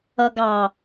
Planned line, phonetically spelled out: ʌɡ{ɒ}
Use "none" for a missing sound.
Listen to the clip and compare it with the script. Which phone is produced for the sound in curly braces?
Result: ɑ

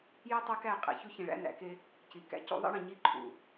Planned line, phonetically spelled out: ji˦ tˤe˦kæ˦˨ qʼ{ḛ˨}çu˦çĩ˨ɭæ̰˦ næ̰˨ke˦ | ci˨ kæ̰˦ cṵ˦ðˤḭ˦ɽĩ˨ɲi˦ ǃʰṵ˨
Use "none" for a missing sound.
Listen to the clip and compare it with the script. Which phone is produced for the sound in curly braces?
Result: ḛ˨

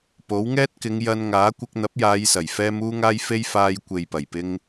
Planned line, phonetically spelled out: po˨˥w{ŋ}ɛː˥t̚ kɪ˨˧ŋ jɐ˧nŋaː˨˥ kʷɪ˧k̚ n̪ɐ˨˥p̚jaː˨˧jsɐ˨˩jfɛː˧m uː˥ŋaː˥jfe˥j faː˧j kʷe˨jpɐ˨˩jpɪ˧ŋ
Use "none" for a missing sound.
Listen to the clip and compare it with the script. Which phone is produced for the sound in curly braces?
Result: ŋ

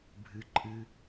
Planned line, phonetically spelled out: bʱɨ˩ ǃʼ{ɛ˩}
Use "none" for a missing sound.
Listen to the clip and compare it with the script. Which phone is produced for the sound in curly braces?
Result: ɨ˩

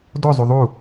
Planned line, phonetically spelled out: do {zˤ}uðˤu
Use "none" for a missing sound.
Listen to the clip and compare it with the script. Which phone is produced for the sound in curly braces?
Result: zˤ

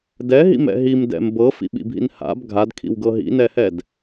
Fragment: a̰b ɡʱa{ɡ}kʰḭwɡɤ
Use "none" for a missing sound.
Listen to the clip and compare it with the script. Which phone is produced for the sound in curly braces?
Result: d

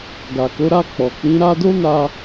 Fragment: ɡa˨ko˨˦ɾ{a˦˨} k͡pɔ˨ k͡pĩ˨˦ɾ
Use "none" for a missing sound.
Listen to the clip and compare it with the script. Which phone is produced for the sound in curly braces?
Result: a˦˨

